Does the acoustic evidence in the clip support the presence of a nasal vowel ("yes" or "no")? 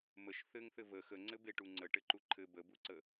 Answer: no